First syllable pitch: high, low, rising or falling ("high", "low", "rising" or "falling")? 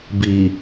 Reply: low